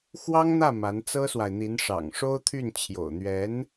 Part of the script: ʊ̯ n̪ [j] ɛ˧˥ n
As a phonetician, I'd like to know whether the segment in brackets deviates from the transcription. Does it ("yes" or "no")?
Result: yes